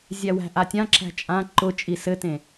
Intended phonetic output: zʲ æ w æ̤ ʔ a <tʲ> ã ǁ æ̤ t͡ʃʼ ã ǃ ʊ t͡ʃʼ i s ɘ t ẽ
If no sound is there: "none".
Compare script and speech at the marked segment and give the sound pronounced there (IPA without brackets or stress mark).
tʲ